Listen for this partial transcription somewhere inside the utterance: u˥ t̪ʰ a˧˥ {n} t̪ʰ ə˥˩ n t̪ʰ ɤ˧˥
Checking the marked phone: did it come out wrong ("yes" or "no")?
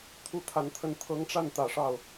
no